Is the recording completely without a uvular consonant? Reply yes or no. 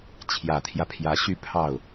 yes